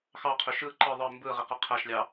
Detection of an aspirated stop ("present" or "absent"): present